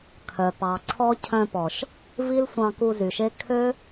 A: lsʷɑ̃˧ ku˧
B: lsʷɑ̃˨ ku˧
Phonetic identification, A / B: A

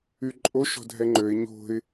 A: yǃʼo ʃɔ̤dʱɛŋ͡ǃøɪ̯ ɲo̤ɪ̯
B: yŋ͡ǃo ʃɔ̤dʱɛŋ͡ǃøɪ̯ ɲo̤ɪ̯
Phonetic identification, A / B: A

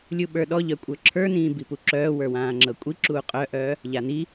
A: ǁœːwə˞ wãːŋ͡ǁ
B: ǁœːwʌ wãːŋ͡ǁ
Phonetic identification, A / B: A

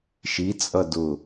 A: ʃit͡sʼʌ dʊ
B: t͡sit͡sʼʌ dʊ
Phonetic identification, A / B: A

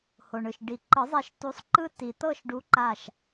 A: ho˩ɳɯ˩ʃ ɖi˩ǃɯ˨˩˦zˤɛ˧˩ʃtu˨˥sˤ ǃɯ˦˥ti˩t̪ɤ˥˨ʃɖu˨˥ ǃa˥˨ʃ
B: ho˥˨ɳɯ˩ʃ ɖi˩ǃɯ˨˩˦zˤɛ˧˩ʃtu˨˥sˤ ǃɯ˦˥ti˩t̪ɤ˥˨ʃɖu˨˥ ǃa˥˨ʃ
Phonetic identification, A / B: A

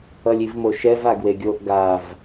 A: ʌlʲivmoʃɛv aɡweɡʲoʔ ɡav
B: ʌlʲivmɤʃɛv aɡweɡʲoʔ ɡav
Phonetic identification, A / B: A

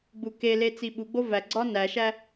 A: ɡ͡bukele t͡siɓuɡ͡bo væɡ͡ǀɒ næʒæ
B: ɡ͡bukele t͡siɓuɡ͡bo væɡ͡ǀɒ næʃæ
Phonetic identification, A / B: B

